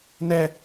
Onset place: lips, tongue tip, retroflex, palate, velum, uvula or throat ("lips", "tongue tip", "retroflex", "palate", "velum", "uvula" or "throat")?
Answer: tongue tip